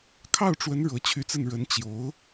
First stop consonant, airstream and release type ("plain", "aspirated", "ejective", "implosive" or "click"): aspirated